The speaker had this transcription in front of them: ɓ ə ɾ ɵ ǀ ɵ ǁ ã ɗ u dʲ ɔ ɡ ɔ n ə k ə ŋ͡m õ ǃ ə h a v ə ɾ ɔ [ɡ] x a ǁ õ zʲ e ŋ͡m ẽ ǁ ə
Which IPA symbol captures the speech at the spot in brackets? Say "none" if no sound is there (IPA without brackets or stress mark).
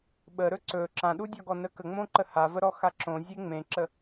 none